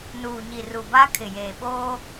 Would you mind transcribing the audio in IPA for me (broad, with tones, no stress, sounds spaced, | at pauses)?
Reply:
n uː˨ ɲ i˨ r u˨ b a˦ kʰ ɪ˨ j eː˨ ɓ oː˦